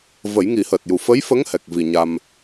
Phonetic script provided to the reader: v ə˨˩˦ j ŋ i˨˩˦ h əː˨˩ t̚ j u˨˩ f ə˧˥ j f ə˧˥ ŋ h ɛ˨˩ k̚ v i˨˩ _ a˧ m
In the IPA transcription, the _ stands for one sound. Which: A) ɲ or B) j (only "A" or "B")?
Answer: A